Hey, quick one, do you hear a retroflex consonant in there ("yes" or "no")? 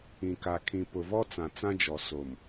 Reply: no